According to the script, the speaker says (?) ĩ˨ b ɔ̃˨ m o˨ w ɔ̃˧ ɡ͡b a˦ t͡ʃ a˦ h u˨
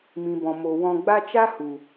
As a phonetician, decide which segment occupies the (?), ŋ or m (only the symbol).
m